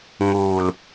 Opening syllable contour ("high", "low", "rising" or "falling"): low